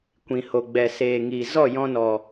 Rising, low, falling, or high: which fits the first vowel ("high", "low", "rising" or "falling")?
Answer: low